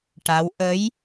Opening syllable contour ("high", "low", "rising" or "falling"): rising